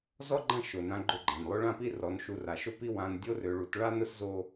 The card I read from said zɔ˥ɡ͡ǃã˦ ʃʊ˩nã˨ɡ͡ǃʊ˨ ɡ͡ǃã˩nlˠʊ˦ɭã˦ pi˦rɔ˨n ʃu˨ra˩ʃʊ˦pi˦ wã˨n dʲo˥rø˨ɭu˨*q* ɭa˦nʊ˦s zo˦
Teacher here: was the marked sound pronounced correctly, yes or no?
no